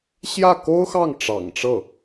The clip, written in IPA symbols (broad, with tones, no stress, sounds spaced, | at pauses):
ɕ j ä˥˩ k o˥ ʊ̯ x ɑ˥˩ ŋ ʈ͡ʂ ɑ̰˨˩ ŋ ʈ͡ʂ ɤ˥˩